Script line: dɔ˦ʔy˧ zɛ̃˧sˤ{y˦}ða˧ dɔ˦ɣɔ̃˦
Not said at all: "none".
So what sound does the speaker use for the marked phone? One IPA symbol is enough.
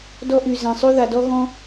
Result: y˦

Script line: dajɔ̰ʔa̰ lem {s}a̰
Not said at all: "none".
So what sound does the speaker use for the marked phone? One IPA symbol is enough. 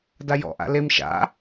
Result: ʃ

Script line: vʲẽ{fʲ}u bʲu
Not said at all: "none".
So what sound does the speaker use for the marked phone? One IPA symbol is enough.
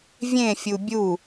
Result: fʲ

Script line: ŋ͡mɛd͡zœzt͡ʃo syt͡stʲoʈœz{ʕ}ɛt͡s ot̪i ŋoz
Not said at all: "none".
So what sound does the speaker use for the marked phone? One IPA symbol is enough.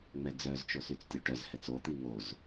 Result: h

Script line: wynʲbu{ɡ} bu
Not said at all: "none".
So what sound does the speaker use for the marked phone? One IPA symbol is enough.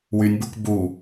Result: k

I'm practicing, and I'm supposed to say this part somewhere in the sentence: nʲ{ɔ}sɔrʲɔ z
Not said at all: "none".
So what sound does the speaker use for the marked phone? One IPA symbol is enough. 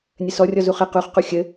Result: ə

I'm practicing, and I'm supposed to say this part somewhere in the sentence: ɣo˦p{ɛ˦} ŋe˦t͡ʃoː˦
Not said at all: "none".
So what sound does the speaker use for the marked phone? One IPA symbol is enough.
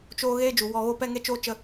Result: ɛ˦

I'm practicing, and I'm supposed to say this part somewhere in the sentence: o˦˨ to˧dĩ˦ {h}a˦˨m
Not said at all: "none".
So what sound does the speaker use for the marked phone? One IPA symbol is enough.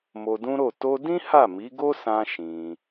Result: h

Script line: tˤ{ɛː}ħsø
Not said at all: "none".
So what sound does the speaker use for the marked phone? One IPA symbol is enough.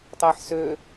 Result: ɛː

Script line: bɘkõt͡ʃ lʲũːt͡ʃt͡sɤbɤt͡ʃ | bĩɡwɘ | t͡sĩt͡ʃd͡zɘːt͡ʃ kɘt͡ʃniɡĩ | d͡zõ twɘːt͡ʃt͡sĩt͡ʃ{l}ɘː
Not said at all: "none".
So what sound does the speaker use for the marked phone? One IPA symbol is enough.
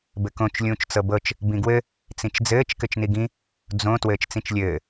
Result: lʲ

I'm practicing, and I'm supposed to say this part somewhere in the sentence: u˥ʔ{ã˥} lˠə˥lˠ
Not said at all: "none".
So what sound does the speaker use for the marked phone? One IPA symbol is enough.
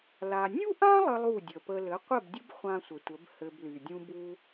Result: ã˥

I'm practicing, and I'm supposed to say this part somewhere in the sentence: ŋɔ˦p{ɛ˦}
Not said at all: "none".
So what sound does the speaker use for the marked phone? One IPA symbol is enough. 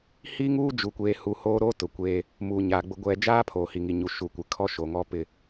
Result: ɪ˦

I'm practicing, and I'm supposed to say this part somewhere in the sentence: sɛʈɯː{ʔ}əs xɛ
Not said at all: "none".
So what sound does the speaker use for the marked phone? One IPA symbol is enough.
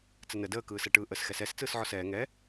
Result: ʔ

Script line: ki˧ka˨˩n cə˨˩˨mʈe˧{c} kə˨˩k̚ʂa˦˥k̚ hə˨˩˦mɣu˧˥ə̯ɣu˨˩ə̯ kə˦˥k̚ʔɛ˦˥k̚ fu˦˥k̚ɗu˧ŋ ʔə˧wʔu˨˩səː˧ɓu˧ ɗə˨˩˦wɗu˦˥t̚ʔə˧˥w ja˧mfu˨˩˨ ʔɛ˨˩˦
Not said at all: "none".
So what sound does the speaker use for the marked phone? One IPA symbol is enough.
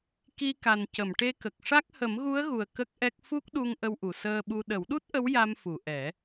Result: none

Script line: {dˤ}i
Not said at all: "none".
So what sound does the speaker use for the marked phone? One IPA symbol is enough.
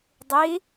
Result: dˤ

